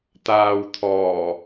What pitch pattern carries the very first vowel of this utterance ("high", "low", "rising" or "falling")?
low